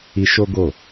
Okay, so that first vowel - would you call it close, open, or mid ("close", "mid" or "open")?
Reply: close